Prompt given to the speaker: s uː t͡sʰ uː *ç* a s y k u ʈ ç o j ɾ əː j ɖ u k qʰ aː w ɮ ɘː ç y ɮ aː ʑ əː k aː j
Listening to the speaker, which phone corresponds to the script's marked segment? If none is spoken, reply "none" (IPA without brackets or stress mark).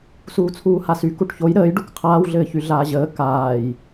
h